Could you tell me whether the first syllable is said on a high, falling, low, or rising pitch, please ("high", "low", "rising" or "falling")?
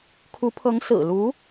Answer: rising